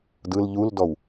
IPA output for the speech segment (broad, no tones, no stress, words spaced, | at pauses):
dɯl ʎuldɔw